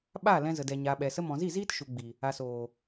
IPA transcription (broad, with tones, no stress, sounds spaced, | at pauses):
ɓ aː˦˨ l ɛ̃˧ z ə˨ d ɛ˨ ɲ aː˨ ɓ ɛ˨ s ə˧ m ɔ̃˨ z i˦˨ z iː˦ t ʃ u˨ ɡ͡b i˨ | a˨ s oː˨